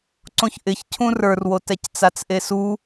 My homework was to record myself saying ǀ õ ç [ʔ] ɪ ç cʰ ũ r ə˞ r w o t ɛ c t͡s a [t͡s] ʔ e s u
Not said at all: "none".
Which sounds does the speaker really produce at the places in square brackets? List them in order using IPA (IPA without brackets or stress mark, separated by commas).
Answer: ʔ, t͡s